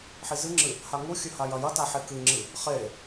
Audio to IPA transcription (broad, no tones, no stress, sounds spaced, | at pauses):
ħ i z ɨ ŋ͡ǁ ɨ | h a ŋ u xʲ ɵ h a j ɐ j ɐ t a ħ e k ɨ ŋ͡ǁ ɨ | χ e